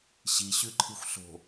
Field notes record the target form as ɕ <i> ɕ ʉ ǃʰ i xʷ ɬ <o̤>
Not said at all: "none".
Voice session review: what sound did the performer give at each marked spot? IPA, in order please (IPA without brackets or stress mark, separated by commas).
i, o̤